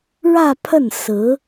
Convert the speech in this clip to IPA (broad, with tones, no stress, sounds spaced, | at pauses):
ɻ ä˥˧ pʰ ə˥˩ n s ɹ̩˧˥